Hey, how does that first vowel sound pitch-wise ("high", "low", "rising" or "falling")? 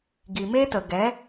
low